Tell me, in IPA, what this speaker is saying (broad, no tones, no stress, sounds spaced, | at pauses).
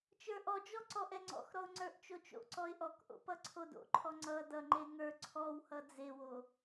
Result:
t͡ʃ ə˞ ʔ ɔ d͡ʒ ɔ ǀ ɔ ʔ ɛ ŋ͡ǀ ɔ̰ x ɾ ɔ ʊ̯ ŋ͡ǀ ə˞ ʔ t͡ʃ o t͡ʃ o̰ ǀ ɔ ɪ̯ ʔ ɔ k ʔ o̰ p ʌ ǀʰ o d o̰ ǃʰ ɔ ŋ͡ǀ ʌ d ʌ ŋ͡ǃ e ŋ ə˞ ǀʰ ɔ w h ʌ d͡z e w o